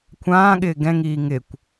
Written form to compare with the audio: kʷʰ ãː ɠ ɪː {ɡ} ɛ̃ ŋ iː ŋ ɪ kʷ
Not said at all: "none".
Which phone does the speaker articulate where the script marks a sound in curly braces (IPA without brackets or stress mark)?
ɡ